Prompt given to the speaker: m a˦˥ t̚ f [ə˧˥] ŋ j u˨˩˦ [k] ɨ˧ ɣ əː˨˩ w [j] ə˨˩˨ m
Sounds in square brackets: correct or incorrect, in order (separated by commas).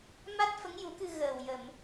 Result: correct, correct, correct